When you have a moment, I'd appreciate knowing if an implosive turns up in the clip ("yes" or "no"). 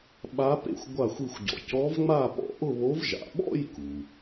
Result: yes